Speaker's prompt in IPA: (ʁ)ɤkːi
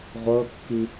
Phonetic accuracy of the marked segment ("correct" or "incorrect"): incorrect